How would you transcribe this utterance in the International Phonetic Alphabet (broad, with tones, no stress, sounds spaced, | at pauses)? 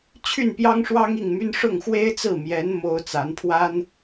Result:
t͡ɕʰ y˥˩ n p j ɑ˥ ŋ ʂ w ɑ˥ ŋ i˥˩ ŋ m y˥ n ʂ ʊ˥˩ ŋ x w e˥ ɪ̯ t͡s ɹ̩˥˩ m j ɛ˧˥ n m o˥ ʊ̯ t͡s a˧˥ n pʰ w a˥ n